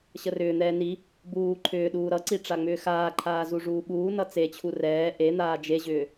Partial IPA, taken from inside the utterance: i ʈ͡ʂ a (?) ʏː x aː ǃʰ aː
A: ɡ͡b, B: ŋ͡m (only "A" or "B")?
B